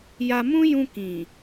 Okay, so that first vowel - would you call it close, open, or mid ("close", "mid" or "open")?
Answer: open